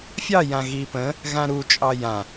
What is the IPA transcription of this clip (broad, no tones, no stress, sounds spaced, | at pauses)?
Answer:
fʲ ɑ j ã ɣ i p ə̃ | ɣ ã ɾ u t͡ʃʼ ɑ j ã